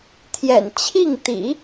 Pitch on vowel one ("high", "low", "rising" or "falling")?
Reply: low